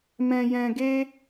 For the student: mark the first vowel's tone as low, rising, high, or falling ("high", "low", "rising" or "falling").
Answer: low